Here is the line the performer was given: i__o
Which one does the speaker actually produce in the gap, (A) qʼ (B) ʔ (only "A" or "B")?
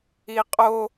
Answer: A